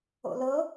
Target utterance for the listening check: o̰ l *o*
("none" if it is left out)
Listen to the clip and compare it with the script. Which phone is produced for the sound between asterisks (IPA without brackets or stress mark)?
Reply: ɤ